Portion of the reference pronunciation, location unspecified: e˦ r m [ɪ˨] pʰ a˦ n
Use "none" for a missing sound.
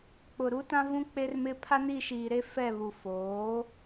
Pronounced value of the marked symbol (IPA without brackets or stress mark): ɪ˦